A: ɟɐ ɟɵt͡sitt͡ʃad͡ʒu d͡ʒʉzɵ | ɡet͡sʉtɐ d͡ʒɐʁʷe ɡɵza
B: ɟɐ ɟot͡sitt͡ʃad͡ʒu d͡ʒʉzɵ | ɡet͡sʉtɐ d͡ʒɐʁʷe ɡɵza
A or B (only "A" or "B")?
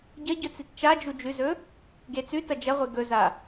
A